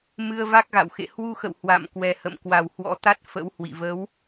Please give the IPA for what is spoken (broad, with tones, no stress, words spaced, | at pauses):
mɨ˧ə̯va˦˥k̚ɣa̰˧˨wxḛ˧˨ hwu˧xə̰˧˨w hwa̰˧˨m kwɛ˨˩hə̰˧˨m kwa˨˩whwɔ̰˧˥ t̪a˦˥t̚ fə̰˧˥whwḭ˧˨ və˨˦w